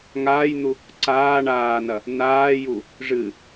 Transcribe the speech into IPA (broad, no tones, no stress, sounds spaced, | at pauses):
ŋ aː j n̪ u | ǀ aː ɳ aː n ɐ | n aː j u | ʐ ɨ